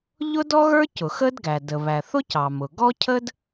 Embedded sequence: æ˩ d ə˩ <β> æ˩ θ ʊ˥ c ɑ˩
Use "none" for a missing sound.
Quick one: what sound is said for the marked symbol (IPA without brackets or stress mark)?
β